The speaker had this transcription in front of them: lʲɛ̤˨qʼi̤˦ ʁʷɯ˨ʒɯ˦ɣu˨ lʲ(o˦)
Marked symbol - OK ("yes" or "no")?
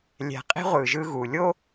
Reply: yes